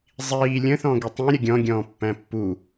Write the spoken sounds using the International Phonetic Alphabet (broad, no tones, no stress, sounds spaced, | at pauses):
zˤ iː lʲ ə̃ θ ɔ̃ ɡ i tˤ ĩ ɾʲ ə ɡʲ ɔ̃ ɡʲ ɔ̃ː pː æ̃ pː u